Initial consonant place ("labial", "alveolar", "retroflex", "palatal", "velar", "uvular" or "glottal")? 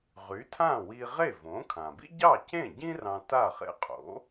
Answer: uvular